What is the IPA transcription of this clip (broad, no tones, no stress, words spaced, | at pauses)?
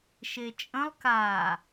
ʃet͡ʃʼə̃lˠ ka